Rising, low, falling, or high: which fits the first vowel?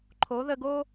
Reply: rising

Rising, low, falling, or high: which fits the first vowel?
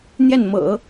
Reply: falling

